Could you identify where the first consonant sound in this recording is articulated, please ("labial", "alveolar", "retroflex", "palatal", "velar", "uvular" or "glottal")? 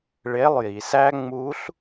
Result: retroflex